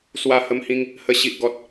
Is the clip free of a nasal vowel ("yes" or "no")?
no